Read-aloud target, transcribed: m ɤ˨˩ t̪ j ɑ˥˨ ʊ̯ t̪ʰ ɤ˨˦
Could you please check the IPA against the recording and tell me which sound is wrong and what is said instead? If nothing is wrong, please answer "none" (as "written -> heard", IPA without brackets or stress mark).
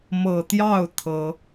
none